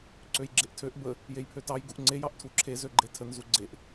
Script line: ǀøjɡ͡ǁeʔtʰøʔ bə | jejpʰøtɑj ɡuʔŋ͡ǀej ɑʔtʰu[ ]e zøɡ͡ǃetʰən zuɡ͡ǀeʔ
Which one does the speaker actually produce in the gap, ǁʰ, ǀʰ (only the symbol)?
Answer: ǁʰ